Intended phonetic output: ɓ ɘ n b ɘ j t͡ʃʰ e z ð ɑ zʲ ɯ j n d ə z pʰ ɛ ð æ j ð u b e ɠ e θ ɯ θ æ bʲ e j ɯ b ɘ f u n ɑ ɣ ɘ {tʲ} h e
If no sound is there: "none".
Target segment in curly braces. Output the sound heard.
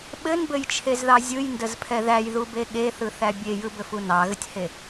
tʲ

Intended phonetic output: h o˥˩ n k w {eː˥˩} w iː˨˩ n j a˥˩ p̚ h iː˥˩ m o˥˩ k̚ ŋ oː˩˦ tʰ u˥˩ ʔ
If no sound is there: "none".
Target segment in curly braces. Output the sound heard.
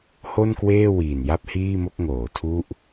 eː˥˩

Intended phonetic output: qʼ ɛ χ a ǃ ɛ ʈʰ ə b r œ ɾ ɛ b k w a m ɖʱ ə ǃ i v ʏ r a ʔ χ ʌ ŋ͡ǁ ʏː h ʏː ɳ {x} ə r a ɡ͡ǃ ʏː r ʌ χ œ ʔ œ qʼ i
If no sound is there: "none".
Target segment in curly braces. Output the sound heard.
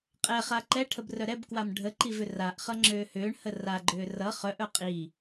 h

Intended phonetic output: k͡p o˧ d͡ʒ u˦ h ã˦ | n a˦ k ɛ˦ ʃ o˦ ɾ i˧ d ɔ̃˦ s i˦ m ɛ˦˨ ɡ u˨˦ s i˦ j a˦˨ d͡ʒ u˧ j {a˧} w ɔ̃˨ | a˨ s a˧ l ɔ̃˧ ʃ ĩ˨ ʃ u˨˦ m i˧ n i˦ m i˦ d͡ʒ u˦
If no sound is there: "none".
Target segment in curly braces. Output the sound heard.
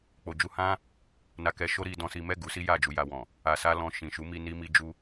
a˧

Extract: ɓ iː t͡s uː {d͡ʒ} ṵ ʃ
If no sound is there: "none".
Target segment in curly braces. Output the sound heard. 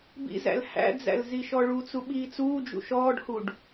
d͡ʒ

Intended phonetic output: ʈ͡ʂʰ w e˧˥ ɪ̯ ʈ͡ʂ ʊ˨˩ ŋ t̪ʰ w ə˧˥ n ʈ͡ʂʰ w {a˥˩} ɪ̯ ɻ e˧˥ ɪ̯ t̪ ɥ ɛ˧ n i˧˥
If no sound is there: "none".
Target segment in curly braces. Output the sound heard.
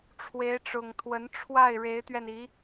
a˥˩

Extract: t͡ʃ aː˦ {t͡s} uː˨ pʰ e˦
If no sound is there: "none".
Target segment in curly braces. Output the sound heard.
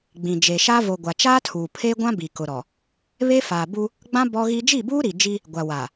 tʰ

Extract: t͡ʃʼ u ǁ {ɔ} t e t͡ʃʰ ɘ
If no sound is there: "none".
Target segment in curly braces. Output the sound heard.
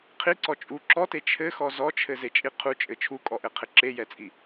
ɔ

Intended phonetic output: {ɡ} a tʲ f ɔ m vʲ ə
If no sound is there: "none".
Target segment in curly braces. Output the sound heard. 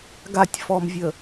ɡ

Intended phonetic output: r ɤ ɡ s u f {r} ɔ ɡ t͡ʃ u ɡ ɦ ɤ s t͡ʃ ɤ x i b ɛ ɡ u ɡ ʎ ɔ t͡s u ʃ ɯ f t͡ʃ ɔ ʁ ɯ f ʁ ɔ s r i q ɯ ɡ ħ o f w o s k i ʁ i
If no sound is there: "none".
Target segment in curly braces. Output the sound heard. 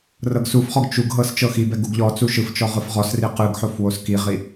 χ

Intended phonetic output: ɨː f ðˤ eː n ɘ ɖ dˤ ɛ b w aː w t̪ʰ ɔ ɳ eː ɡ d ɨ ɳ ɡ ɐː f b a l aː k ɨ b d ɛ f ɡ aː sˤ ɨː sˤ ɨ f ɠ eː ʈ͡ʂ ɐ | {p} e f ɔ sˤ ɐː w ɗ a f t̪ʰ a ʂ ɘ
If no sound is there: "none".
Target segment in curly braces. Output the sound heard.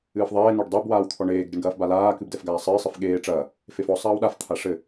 f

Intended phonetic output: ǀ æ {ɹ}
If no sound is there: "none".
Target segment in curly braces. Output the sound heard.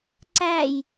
j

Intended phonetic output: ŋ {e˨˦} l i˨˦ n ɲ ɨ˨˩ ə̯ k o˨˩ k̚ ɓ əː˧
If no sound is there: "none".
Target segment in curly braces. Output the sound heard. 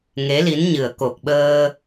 e˨˦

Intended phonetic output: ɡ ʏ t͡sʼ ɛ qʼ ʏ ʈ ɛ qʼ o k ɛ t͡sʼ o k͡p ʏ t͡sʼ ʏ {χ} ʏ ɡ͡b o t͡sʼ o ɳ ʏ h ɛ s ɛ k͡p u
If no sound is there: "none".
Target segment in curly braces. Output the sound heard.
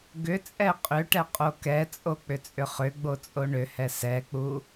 χ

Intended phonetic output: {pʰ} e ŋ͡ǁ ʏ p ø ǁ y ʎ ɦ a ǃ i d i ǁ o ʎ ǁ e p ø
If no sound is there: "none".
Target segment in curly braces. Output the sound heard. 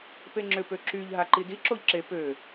p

